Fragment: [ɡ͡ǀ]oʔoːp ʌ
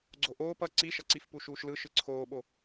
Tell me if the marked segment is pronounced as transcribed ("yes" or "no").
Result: yes